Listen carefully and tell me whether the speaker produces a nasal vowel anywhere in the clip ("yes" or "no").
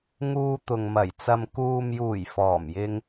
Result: no